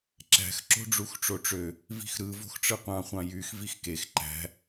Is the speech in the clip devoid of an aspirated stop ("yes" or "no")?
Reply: yes